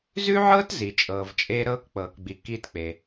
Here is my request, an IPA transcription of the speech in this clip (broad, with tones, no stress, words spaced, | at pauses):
zʉ˥ʕɤː˥tzi˩ t͡ʃʼɤː˩vt͡ʃʼeː˥ ɾɤː˥kk͡pɤː˩kɡ͡bi˩ kiː˥tk͡pe˩